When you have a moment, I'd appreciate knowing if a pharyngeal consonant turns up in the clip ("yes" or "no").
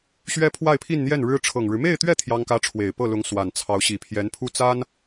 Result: no